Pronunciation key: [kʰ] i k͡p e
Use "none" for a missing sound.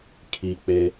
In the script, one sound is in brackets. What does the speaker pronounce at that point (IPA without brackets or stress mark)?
kʰ